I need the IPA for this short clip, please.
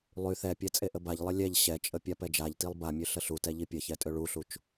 lˠ y θ ɛ pʲ ɛ t͡sʼ e ʔ ə b a ʎ lˠ ə lʲ ɛ ʎ ɕ ɛ t͡ʃʼ ə pʲ a p ɛ d͡ʒ a ʎ t i lˠ b a mʲ ø ɬ ə ɬ u t ɛ ʎ i pʲ ə ç ɛ tʼ ø ɭ u ɬ u t͡ʃ

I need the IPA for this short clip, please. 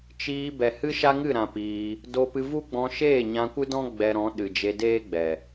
t͡ʃ iː˧ b ɛ˨ h ɨ˦ ʃ a˦ ŋ ɨ˦˨ ɾ ã˨ p iː˧ | d o˧ p ɨ˧ v u˦ ɡ͡b ɔ̃˧ ʃ eː˦˨ ɲ ã˧ kʷ ɨ˦ d ɔ̃˦ ɡ͡b ɛ˧ ɾ ɔ̃˨˦ ɗ ɨ˨ d͡ʒ e˧ d eː˦ ɡ͡b ɛ˨

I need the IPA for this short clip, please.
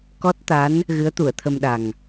k ɔ˦˥ t̚ t̪ a˧˥ n | ɣ ɨ˧˥ ə̯ t̪ u˨˩˨ ə̯ t̪ʰ ə˧ m ɗ a˨˩ ŋ

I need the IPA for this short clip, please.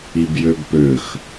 i b j ø b p ø x

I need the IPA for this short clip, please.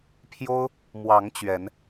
pʰ j o˦ ʊ̯ | m w ɑ˨˦ ŋ t͡ɕ ɥ ɛ˨˦ n

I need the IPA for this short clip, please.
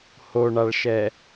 h o ɳ a ɭ ʃ ɛ

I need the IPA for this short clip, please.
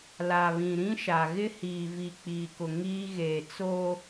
l a˨ β ĩ˨ ɾ ĩ˦ ʃ a˨ ɣ ɪ˦ h iː˨ v i˨ k͡p iː˨ k ʊ˨ ŋ iː˦ ɣ eː˨ t͡s oː˦

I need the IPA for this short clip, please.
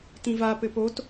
t ĩ v a p ɘ p o t

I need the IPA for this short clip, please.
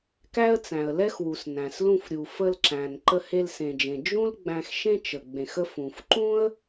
k æ˥ ə̯ t͡s æ̃˩ ə̯ l ɛ˥ x w u˩ s n æ̃˩ s l ũ˧ f ɾʲ u˩ f ə˧ l ǁ æ̃˩ n ǃ ə˧ h e˧ l s ẽ˩ d͡ʒ ẽ˩ d͡ʒ ũ˥ l ɡ͡b æ̃˧ x ʃ ẽ˥ t͡ʃ ə˩ ɡ͡b ẽ˩ x ə˧ f ũ˩ f ǃ ũ˥ ə̯

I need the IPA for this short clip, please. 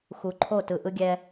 x u˨ ǃʰ o˦˨ t ɯ˨ ʔ ɯ˦ ɡʲ ɛ˦

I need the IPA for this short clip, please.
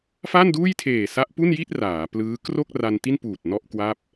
f a˥˩ n d uː˥˩ j tʰ eː˨˩ s a˦˥ ʔ p u˥˩ n j i˥˩ t̚ r aː˩˦ p l ɯː˦˥ k r o˥˩ k̚ r a˧ n t i˥˩ n p uː˨˩ t̚ n ɔ˥˩ ʔ k w a˥˩ p̚

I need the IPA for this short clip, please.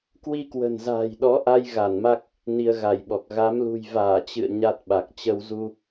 k w i˧ k w ə̤˨˩ n z a̤ː˨˩ j ɗ ɔ˨˦ ʔ a˧ j ɣ a˧˩ n m a˦˥ k̚ | n i˧ ə̯ ɣ a˧˩ j ɓ ɔ˨˩ k̚ ɣ a˨˦ m l ṳ˨˩ j v aː˧˩ t͡ɕ ɨ̰˧˨ ə̯ ɲ a˦˥ t̚ ɓ a˨˩ k̚ t͡ɕ ə˧ w z u˧

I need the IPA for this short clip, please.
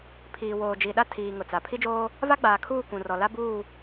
pʰ iː˨ w oː˨ d͡ʒ i˨ ɗ a˦ tʰ iː˨ ŋ ʊ˨ t͡s a˨ pʰ i˦ d͡ʒ oː˦ | v a˦ ɡ͡b aː˨ kʰ uː˦˨ kʷ ũ˨ r ɔ˨ l a˦ b uː˦˨

